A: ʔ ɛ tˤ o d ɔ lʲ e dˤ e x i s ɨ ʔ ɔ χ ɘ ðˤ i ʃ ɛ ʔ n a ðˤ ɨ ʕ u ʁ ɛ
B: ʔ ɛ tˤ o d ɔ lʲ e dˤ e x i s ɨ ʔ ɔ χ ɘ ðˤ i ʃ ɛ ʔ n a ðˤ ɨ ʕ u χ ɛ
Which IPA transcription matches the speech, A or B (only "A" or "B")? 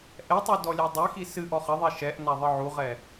A